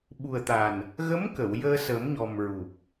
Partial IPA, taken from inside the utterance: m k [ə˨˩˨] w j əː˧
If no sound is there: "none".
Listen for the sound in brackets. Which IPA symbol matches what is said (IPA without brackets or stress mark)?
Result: ə˨˩˨